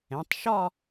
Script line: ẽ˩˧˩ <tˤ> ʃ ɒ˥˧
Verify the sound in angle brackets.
correct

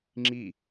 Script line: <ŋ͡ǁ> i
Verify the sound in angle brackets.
correct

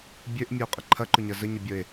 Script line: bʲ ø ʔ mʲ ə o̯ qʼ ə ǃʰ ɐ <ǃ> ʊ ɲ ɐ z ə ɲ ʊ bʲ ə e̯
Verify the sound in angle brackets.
correct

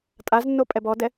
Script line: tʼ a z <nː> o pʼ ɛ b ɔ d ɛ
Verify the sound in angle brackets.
correct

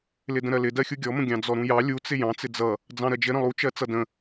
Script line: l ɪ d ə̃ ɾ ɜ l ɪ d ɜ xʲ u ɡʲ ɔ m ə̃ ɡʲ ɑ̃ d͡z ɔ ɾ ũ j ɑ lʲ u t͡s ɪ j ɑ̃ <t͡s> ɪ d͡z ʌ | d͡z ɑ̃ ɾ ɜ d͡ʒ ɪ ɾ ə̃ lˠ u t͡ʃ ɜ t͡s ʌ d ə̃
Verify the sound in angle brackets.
correct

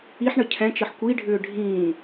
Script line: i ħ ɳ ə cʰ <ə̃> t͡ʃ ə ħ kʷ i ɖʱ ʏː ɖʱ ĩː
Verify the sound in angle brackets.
incorrect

